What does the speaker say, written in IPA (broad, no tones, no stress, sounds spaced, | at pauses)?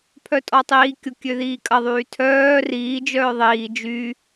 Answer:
pʰ œ tʼ ɔ tˤ iː kʲ ʊ kʲ ø ð iː kʼ ɐ ðˤ yː tʰ œː r iː d͡ʒ œː ðˤ iː d͡ʒ y